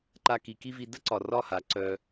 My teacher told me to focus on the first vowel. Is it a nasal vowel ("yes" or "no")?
no